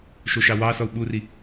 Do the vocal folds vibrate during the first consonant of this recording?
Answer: no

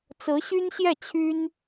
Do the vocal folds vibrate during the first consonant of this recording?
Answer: no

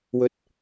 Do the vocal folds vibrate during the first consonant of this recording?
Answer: yes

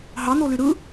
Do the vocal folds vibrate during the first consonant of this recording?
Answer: yes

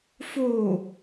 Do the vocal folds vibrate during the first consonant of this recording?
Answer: no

